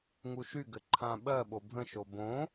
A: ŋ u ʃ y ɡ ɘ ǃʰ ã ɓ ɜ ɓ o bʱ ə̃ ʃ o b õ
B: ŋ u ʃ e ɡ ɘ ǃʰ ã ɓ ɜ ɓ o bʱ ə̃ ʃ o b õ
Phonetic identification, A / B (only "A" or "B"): A